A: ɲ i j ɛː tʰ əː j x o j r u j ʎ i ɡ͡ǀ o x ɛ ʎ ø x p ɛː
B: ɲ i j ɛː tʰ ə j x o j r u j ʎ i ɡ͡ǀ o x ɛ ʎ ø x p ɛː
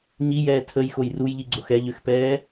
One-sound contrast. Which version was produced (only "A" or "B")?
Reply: B